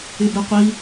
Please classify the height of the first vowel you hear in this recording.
high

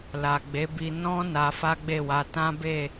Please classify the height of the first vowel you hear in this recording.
low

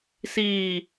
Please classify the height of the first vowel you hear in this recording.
high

